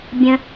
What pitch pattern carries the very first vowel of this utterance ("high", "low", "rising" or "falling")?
low